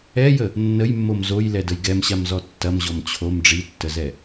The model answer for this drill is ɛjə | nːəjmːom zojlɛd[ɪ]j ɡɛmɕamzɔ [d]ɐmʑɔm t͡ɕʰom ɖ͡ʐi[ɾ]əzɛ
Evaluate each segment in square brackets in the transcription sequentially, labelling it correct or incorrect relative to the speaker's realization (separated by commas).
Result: incorrect, incorrect, incorrect